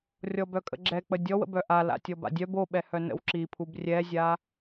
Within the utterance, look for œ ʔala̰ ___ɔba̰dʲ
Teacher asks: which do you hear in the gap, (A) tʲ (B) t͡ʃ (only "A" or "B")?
A